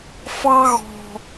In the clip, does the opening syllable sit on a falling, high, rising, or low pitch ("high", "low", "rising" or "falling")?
high